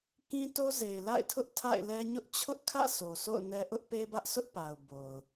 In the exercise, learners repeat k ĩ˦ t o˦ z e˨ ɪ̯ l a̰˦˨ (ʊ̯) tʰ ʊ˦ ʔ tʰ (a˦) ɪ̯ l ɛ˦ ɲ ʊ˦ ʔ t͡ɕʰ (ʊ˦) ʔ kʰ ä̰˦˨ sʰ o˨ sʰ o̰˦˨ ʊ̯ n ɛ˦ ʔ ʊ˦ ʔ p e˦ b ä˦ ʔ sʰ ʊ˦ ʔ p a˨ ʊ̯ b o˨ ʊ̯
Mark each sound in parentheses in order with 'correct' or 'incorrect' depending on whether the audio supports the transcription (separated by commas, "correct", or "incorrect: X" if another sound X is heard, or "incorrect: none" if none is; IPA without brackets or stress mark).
incorrect: ɪ̯, incorrect: a̰˦˨, correct